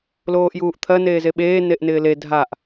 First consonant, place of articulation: alveolar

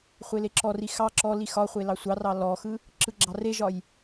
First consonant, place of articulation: uvular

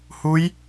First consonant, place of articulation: glottal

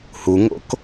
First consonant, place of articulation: glottal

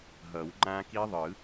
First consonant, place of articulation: glottal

